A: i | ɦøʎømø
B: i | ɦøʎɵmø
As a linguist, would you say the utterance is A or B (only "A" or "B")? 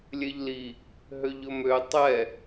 B